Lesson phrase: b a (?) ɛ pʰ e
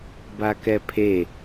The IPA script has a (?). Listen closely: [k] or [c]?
k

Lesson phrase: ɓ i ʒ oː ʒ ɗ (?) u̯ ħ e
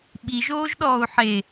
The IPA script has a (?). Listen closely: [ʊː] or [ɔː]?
ɔː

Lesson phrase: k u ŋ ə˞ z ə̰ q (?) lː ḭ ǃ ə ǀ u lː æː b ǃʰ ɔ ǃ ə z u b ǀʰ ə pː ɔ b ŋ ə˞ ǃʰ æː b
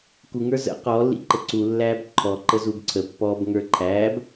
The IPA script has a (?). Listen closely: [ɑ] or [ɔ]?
ɔ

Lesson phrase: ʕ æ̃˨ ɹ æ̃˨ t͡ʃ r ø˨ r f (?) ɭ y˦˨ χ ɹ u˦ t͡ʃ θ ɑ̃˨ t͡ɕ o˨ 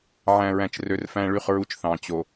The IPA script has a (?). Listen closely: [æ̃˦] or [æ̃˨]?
æ̃˦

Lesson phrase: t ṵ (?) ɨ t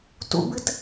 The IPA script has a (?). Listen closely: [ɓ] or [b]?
b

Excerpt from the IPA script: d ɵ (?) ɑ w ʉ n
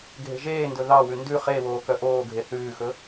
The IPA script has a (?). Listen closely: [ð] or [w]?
ð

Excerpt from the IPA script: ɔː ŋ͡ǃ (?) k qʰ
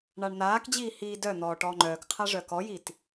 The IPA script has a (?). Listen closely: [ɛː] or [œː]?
œː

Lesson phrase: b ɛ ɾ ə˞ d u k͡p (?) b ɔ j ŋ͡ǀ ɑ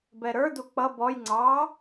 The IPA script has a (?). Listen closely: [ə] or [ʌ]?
ʌ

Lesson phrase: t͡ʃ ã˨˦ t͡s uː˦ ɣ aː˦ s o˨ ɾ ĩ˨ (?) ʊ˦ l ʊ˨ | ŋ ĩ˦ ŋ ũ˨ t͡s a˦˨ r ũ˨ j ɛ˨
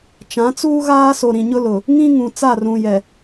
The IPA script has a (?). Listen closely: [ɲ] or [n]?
ɲ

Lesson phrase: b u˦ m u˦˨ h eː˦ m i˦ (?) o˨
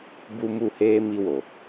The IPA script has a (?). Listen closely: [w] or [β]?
w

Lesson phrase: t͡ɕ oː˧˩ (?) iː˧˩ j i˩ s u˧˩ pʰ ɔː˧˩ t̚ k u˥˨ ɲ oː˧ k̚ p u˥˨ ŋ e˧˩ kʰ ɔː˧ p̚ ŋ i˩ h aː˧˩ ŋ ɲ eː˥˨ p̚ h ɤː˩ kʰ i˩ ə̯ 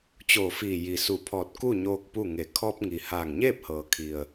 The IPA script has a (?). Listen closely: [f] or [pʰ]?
f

